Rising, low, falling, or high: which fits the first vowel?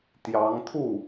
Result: rising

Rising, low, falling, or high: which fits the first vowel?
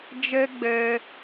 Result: high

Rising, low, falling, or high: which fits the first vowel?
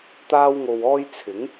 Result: high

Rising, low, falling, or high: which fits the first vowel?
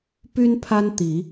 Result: high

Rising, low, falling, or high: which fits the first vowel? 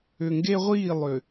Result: low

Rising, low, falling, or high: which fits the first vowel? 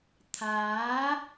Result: rising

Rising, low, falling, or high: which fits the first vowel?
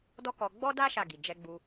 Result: high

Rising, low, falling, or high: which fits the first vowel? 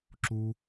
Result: high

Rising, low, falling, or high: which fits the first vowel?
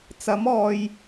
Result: rising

